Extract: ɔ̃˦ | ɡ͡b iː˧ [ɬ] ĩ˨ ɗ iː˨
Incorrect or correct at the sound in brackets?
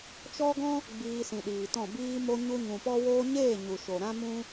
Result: incorrect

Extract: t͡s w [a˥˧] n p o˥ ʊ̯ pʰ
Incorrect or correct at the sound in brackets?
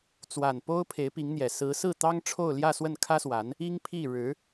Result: incorrect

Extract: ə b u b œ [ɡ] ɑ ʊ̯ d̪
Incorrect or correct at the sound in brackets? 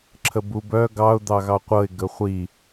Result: correct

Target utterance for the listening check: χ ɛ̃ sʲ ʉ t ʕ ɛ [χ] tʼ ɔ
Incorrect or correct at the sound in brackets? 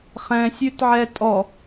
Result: incorrect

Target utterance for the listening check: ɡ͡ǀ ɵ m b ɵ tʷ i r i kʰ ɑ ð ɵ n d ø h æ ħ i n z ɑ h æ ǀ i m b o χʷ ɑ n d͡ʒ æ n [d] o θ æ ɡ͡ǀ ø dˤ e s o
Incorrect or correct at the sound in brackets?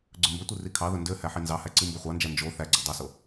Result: incorrect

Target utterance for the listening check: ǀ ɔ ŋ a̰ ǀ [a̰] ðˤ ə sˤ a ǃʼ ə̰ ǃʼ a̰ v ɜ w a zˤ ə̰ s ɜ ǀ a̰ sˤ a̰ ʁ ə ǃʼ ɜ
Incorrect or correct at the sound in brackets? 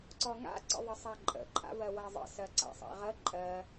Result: incorrect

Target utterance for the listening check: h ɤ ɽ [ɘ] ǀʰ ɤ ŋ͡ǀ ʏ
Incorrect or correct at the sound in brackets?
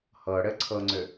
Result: correct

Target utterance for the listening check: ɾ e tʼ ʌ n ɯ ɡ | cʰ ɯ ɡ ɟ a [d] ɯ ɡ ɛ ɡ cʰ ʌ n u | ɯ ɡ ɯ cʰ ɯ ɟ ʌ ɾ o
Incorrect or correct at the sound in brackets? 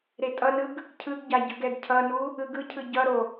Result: incorrect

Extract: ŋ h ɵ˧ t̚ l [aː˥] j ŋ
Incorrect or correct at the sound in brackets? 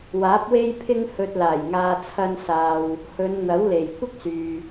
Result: incorrect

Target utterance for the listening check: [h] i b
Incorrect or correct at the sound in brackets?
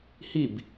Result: correct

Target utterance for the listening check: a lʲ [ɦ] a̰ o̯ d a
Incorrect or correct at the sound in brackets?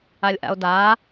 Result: incorrect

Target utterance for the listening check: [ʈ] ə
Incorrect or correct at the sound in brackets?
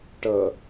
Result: correct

